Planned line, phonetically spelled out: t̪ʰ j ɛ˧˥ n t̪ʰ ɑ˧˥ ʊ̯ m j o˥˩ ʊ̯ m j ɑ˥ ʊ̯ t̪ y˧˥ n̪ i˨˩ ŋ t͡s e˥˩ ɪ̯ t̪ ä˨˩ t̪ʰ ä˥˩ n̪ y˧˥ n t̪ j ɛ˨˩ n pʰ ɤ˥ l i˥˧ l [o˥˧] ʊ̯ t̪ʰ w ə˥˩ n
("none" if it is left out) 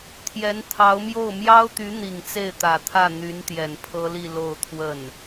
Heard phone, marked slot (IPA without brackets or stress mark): o˥˧